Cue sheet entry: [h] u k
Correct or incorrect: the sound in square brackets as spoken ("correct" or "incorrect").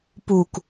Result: incorrect